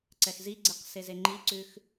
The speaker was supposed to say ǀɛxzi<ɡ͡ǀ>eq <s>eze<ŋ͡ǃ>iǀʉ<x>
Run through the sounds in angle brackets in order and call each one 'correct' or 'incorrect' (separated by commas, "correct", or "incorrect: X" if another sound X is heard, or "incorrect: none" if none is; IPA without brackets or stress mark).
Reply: correct, correct, correct, correct